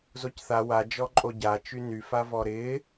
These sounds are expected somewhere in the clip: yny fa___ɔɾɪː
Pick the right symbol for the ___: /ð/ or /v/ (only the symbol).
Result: v